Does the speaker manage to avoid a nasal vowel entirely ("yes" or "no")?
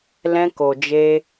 no